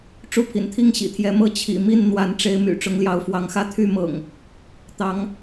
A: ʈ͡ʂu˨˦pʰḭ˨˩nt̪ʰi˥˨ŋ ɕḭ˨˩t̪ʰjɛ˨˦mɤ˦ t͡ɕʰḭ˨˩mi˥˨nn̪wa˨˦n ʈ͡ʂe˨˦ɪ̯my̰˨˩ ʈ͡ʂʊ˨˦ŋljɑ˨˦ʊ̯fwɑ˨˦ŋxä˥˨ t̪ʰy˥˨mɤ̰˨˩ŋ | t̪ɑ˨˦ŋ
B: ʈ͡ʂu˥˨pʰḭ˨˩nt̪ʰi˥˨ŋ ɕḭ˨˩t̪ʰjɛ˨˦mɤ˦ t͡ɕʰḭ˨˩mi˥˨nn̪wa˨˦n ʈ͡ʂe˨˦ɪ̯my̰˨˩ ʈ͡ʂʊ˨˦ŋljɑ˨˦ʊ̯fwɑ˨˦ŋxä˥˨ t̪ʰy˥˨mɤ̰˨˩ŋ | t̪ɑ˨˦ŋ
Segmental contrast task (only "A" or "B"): B